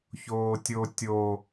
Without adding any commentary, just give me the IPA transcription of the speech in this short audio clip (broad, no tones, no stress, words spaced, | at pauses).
çoːtʲo tʲo